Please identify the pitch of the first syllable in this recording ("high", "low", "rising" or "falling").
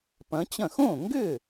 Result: rising